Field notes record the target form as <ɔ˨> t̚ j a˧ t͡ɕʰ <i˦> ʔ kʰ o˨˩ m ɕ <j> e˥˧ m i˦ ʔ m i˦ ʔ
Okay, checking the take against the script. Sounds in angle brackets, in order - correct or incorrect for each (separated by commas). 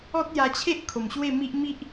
incorrect, incorrect, incorrect